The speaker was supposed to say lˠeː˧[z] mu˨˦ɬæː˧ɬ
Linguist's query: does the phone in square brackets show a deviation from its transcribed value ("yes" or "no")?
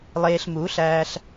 yes